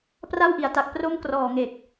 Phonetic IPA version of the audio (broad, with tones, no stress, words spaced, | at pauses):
pra˥˩wʔi˩˦a̯ta˨˩k̚ pro˥˩m krɔː˨˩ŋe˨˩k̚